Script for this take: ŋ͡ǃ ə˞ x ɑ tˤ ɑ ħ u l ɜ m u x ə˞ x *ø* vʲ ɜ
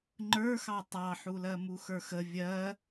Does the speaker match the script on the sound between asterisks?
no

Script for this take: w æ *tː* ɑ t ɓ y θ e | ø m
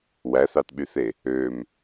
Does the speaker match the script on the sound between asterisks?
no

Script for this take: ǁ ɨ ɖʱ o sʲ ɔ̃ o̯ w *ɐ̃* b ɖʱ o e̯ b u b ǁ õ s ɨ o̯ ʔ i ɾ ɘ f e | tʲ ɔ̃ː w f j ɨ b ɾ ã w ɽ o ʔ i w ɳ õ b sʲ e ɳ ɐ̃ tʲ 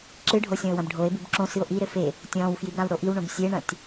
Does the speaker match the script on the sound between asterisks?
yes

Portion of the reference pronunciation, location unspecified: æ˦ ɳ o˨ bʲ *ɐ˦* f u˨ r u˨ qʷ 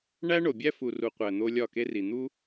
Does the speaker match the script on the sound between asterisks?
no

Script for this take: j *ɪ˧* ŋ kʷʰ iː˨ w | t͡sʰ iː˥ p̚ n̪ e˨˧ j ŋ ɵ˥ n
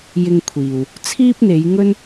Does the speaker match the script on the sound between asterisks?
yes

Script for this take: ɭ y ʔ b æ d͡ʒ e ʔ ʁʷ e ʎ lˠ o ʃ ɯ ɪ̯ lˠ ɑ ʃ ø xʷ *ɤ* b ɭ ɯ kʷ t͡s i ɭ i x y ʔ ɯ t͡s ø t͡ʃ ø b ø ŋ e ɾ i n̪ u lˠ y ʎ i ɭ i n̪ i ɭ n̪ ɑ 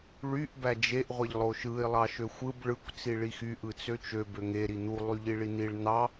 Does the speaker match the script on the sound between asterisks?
no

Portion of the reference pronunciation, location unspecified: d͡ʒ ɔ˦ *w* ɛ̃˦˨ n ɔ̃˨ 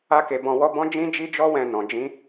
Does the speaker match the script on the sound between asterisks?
yes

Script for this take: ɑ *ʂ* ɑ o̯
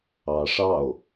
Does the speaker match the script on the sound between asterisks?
yes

